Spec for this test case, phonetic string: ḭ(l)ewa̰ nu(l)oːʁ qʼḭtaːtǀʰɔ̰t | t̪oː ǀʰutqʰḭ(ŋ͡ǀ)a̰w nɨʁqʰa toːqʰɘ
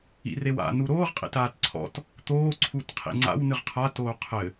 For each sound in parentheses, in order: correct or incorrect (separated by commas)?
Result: incorrect, incorrect, correct